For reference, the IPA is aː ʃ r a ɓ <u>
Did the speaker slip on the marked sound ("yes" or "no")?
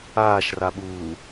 yes